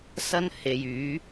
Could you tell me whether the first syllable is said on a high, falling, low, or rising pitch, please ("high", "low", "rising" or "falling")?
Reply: high